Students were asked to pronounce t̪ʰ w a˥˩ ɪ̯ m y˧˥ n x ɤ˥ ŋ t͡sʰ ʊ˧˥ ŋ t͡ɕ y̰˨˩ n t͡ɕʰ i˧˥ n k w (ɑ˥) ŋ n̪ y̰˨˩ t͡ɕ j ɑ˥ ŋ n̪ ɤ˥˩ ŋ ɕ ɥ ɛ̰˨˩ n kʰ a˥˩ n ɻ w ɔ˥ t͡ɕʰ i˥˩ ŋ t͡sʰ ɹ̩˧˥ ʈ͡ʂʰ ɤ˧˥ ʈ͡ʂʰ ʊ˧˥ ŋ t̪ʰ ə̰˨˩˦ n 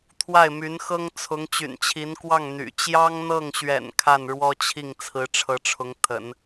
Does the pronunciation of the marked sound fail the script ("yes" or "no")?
yes